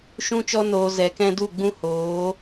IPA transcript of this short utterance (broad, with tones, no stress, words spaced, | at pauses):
ʃũ˧t͡ʃɔ˧noː˨ zɛ˨kɛ̃˧ du˦˨ɡ͡bũ˦hoː˨˦